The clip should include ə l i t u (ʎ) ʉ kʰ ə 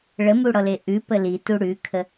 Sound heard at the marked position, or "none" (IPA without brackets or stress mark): ɽ